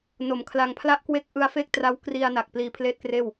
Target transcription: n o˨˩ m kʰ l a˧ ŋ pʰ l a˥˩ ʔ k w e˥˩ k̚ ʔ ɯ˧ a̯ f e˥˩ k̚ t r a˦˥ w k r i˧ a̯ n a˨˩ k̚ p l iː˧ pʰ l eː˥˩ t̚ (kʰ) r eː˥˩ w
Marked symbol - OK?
no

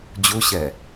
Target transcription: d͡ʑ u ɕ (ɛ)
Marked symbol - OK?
yes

